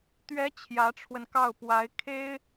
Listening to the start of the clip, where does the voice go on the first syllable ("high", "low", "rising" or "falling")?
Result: rising